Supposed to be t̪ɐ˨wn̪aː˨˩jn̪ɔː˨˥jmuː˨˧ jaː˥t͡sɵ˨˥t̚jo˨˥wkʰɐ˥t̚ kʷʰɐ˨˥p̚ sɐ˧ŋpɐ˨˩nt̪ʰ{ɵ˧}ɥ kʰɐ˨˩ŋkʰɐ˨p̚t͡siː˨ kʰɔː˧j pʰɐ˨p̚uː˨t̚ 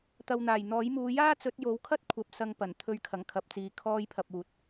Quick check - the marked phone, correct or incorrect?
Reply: correct